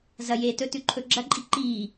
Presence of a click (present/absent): present